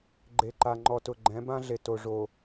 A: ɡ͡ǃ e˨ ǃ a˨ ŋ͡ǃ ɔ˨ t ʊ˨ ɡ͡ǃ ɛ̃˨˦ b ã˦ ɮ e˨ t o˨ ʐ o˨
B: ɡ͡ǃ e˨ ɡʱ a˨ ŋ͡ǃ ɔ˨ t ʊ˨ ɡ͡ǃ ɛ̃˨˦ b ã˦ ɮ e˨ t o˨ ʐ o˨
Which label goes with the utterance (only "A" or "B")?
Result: A